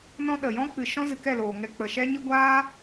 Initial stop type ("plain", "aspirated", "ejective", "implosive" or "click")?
implosive